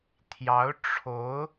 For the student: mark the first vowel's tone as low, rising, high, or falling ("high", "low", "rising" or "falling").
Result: rising